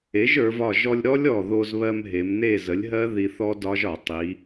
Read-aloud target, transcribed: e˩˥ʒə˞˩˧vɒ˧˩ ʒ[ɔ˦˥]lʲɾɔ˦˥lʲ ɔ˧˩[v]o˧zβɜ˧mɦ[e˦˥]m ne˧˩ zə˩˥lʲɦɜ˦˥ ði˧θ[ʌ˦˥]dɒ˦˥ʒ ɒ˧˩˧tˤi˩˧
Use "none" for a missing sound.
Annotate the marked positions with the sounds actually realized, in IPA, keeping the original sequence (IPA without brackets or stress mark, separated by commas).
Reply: ɔ˧, ð, e˩˧, ɔ˦˥